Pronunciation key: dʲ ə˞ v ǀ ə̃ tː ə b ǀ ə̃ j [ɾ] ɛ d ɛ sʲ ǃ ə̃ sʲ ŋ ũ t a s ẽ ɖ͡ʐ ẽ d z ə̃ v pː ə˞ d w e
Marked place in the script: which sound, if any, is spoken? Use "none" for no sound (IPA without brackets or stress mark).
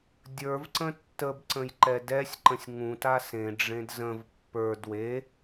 ǃ